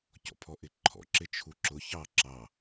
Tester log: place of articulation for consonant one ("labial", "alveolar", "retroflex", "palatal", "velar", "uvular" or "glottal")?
palatal